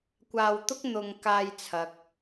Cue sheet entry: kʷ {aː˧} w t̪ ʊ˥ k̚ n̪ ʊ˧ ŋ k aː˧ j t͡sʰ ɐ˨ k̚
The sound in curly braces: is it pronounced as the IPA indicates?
yes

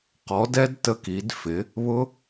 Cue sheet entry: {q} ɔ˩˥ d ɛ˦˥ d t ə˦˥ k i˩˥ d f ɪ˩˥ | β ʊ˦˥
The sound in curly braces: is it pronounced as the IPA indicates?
yes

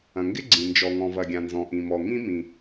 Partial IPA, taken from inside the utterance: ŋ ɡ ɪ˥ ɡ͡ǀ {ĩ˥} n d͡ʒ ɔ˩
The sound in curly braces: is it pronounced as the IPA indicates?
no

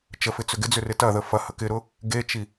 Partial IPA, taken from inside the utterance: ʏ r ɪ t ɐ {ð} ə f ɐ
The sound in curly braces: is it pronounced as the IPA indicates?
yes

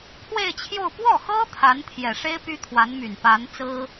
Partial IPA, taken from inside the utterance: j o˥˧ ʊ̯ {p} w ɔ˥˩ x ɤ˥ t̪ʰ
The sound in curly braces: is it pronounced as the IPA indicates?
yes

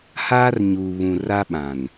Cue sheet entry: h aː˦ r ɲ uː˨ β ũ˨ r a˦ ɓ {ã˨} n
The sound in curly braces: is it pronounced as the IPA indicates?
yes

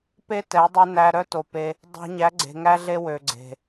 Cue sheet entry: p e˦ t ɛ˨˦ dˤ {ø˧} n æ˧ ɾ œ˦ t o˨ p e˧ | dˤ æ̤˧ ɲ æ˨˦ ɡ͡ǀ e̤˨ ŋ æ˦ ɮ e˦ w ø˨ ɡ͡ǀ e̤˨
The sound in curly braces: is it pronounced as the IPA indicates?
no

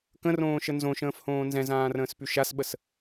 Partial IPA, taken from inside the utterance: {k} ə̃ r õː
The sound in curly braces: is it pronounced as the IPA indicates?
yes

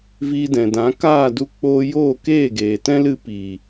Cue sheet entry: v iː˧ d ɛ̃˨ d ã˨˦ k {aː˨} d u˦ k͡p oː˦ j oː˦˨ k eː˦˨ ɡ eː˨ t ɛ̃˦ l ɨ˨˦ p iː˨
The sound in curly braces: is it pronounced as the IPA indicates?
no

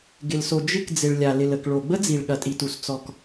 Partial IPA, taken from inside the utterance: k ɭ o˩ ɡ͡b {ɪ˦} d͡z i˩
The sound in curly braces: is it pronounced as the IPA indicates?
no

